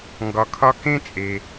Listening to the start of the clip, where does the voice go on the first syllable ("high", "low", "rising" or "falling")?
low